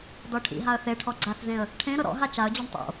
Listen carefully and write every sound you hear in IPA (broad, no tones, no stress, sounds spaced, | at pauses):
d ɔ ʈʰ ḭ ɦ a ə̯ θ e ʈʰ ɔ ɡ͡ǀ a θ z ẽ ə̯ | ʈʰ ẽ ɾ ɤ ɾ ɔ̰ ɦ a t͡ʃ a ə̯ d͡ʑ o ɳ tˤ o̰